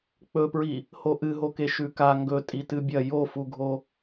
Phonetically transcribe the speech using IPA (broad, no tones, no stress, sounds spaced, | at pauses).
k͡p ɵ p ɹ i | h o ʔ ɨ ɦ o k e ʃ ʉ k a ŋ ɡ ɵ tʼ i t ɨ bʲ ɐ j o f u ɡʱ o